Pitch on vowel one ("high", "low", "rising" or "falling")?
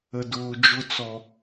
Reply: low